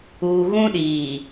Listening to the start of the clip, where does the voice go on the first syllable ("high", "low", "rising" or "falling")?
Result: low